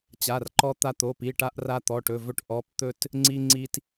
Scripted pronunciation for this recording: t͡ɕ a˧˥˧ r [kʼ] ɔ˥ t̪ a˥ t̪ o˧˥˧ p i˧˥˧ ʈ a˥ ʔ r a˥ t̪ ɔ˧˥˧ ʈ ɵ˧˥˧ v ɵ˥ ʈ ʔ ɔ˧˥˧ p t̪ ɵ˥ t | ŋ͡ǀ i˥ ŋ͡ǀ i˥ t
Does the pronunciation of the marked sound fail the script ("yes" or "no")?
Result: yes